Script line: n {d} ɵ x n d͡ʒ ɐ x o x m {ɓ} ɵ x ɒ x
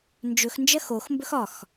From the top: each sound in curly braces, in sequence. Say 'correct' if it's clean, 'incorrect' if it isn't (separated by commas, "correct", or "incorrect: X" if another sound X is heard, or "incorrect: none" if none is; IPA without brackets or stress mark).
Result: incorrect: d͡ʒ, incorrect: b